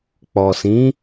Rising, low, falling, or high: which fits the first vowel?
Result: low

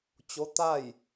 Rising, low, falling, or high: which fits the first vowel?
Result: rising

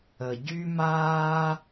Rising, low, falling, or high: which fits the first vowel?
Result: low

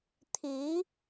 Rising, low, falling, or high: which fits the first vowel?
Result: rising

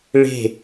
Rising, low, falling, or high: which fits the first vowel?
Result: falling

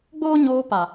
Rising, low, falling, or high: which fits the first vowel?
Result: high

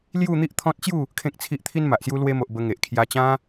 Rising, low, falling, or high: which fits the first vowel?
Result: falling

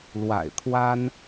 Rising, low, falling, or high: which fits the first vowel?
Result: low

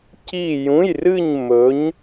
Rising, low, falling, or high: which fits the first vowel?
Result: falling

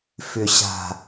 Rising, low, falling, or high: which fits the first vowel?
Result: low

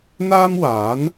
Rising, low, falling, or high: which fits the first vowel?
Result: high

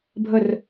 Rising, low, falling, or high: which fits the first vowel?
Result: falling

